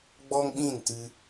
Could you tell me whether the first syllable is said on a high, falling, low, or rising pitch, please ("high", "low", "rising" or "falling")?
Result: high